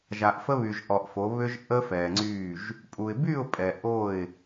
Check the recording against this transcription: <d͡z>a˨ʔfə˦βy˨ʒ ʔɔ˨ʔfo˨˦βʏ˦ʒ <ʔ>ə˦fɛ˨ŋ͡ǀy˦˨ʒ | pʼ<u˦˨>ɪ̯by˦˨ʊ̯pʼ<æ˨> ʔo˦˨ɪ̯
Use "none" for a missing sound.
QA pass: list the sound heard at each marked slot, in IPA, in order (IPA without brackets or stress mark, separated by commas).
ʒ, ʔ, u˨, ɛ˨